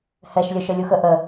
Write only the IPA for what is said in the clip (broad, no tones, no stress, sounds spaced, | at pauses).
h ɛ ʃ lʲ œ ʃ œ lʲ u x ə ʔ ə